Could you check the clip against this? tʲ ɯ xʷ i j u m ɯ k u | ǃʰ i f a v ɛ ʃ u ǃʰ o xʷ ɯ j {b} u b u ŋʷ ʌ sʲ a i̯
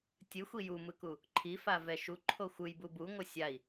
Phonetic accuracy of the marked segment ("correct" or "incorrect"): correct